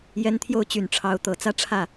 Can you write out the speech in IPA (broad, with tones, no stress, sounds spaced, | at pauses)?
j ɛ˥ n t̪ʰ j o˥˩ ʊ̯ t͡ɕ y˨˩ n ʈ͡ʂʰ ɑ˧˥ ʊ̯ t̪ ɤ˨˩ t͡s ä˥ ʈ͡ʂʰ ä˥˩